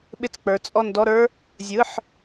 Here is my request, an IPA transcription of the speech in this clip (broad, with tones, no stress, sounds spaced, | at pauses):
ɓ ɪ˦˨ t͡s k͡p ə˞˩˧ t͡sʼ ɔ˦˨ n d ɔ˧˥˧ ɾ ə˞˦˥ | zʲ ɯ˩˧˩ ħ